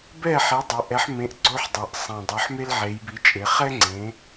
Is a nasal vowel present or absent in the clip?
present